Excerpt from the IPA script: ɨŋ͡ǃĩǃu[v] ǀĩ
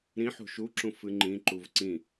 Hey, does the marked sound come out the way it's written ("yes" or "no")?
yes